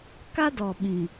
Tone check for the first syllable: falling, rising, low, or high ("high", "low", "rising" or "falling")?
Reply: high